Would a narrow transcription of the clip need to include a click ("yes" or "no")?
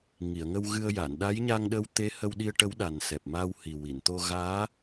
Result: no